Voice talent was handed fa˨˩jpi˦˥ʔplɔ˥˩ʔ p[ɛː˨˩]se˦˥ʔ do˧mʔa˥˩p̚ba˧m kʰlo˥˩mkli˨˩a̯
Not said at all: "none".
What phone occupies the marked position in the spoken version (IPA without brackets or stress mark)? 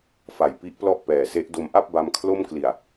ɛː˨˩